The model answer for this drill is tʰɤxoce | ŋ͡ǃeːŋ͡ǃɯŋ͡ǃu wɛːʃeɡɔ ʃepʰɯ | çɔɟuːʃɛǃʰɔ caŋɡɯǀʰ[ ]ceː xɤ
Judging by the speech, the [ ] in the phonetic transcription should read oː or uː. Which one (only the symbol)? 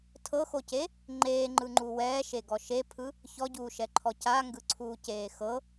uː